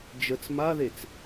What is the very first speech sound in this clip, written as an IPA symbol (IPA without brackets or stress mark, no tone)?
d͡ʒ